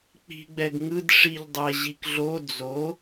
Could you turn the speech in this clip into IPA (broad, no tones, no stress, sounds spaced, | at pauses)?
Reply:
k͡p i̤ ɡ͡b ɛ ɡ ŋ ɯ d ʂ i ʎ dˤ ɛ ʑ i k ɮ o d͡z o